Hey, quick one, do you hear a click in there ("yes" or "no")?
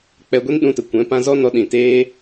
no